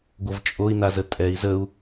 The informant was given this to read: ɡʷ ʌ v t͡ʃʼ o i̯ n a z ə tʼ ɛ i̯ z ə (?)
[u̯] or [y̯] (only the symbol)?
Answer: u̯